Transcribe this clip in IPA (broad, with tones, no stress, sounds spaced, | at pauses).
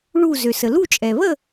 ɭ u˧˩ z ø˩ s ə˩ l u˥˨ t͡ʃʼ ɛ˩ β ə˥˨